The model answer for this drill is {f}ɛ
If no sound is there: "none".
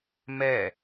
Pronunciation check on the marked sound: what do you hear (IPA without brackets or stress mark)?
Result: m